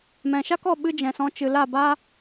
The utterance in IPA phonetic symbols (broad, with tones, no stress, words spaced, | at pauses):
mɛ̃˨ʃa˦kɔ˦˨ ɓɨ˦d͡ʒɛ̃˨sɔ̃˧ t͡ʃɨ˨la˦˨ba˦